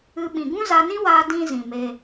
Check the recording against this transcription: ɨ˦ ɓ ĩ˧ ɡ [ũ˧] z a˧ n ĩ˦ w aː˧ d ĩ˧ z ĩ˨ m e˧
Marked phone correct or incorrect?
incorrect